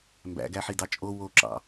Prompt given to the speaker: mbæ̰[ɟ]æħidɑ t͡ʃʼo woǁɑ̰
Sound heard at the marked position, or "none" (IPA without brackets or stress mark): ɡ